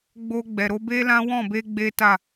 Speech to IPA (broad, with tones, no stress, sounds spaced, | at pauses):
ɡ͡b o˧ ɡ͡b ɛ˨ ɾ o˧ b e˦ l ã˦ w ɔ̃˦˨ b e˧ ɡ͡b e˦ t a˦˨